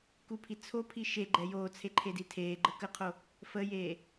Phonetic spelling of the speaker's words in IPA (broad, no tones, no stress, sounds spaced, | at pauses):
k u pʰ i t͡sʰ o pʰ i ʃ e ɡ͡ǃ ɛ j oː t͡sʰ e ǃʰ e d i tʰ eː ɡ͡ǃ ə k ə qʰ o | f ə j eː